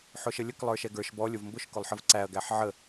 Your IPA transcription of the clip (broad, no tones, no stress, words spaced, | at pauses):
ħʊʃəlʲək lˠə˞ʃɛɡə˞ʃ bɔ lʲʊvmbʊʃ kʊlˠħəvǀæɐ̯ ɡæħʕə